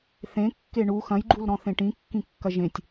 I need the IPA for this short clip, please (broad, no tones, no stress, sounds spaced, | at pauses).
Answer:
θ ẽ kː e ɳ u x ɐ̃ j ɡ͡ǃ u l ɾ ɔ̃ θ ẽ ʈ ĩ kː ĩ kː ɐ ʒ ẽ tʲ